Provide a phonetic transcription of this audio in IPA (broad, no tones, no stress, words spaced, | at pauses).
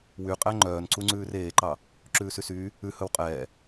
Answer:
wyqʼæ ŋ͡ǃœːnǀuŋ͡ǀʉːr eːǃɑ | ǁʉːsysyː | ʉ hɵwqʼɛː